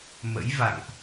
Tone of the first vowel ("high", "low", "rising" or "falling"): rising